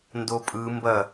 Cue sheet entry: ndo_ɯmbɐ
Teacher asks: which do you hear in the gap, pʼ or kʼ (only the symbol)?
pʼ